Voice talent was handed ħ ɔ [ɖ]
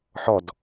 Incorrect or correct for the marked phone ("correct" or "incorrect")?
incorrect